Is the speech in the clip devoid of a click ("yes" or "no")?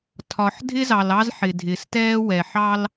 yes